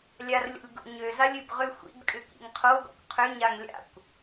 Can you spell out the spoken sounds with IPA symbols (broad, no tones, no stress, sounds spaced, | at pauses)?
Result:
lʲ a r lʲ o̰ lʲ ɡ o̰ ɲ ø z a lʲ ʏ b ʁ ø xʷ ḭ b kʼ ʏ k ḭ ŋ qʰ o ɡ ɔ̰ kʷ qʰ ø ɲ a ŋ lʲ a̰ kʷ